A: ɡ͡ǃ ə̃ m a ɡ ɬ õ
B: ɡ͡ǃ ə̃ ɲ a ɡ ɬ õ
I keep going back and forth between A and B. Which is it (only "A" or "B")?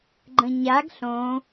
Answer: B